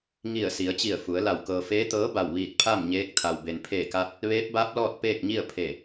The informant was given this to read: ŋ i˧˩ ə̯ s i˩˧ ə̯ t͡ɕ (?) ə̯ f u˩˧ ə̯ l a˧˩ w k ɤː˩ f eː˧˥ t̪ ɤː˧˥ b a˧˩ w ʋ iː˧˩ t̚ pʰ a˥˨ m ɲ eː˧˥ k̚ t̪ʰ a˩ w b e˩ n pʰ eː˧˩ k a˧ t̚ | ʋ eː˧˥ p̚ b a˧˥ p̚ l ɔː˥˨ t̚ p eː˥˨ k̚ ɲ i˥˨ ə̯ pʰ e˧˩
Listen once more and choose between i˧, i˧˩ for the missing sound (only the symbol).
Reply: i˧˩